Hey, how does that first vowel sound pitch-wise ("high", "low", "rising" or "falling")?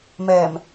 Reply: low